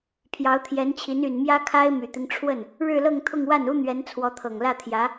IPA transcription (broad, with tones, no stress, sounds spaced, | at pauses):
pʰ j ɑ˧˥ ʊ̯ t̪ʰ j ɛ˧˥ n t͡ɕʰ i˧˥ n y˨˩ n m j ä˥ kʰ a˥ ɪ̯ m y˨˩ t̪ i˦ ŋ ʈ͡ʂʰ w ə˥˩ n | ɻ ɻ̩˥˧ l ɤ˥˧ ŋ t̪ʰ ʊ˥˧ ŋ w a˥˩ n u˥ n̪ ɥ ɛ˧˥ n t͡sʰ w ɔ˧˥ t̪ʰ ɤ˨˩ ŋ l ä˥˩ t̪ʰ j ä˧˥